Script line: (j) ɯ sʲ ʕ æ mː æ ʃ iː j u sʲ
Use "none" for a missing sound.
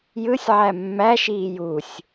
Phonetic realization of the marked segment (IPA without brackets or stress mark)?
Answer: j